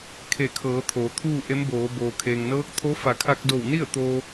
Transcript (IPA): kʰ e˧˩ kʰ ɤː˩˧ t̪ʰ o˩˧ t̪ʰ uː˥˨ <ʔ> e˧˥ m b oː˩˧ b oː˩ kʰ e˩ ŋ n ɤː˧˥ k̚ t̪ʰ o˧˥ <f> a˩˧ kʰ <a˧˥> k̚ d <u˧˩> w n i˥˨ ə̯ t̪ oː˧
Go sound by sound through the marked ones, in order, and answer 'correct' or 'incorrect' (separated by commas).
correct, correct, incorrect, incorrect